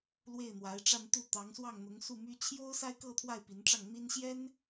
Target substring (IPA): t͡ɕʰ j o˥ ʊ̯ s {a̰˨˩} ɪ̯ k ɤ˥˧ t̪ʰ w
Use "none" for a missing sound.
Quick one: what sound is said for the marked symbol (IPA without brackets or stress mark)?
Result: a˥